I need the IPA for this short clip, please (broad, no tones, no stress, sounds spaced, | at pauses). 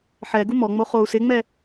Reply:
ħ ɛ ɡ u m ɔ ŋ͡m o χ o u̯ s ɪ ŋ͡m ɛ